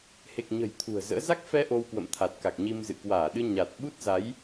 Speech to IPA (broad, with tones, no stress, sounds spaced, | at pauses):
h e˨˩ k̚ ɲ ə̤˨˩ j t̪ʰ ṳ˨˩ ə̯ z ə̰ː˧˥ z a˦˥ k̚ f ɛ˧ ʔ o˧ w k w ə̰˧˨ m t̪ʰ a˨˩ t̚ k a˨˩ k̚ ɲ i˧ m z ɨ̰˧˨ k w aː˧˩ ɗ ɨ˧ ɲ a˨˩ t̚ ɓ u˦˥ t̚ z a˨˦ j